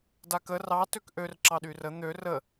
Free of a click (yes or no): no